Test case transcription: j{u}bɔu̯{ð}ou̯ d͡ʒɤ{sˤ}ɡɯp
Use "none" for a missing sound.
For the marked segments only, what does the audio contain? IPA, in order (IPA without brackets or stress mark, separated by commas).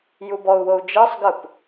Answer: u, w, sˤ